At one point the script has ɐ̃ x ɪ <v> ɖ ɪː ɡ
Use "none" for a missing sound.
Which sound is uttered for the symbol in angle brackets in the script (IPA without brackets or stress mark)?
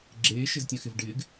v